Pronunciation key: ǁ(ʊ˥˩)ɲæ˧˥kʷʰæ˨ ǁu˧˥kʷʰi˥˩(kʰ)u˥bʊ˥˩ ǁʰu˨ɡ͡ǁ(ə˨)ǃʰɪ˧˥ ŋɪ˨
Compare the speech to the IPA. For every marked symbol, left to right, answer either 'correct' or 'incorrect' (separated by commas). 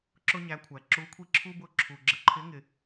incorrect, incorrect, correct